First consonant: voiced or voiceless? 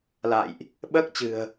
voiced